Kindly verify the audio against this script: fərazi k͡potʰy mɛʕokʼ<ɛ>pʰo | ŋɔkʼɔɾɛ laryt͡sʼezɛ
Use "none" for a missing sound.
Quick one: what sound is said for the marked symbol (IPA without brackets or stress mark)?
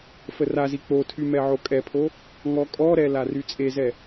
ɛ